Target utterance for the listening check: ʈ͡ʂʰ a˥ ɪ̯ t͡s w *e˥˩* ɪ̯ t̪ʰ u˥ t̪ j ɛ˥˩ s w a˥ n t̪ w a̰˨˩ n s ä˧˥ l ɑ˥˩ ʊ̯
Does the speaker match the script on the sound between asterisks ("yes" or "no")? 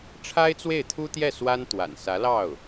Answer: yes